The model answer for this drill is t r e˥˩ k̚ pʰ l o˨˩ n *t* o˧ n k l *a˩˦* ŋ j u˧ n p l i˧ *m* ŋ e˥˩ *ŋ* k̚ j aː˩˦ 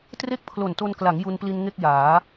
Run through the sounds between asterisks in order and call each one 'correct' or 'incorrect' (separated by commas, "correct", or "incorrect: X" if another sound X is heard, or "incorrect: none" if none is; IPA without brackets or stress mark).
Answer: correct, correct, incorrect: n, incorrect: none